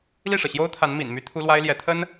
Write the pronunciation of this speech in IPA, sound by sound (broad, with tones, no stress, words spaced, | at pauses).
li˥˩ʂɤ˩ɕjo˥ʊ̯t̪ʰa˧˥n mḭ˨˩nmy˥t̪ʰu˥ lwa˥ɪ̯ljɛ˧˥t̪ʰə˥n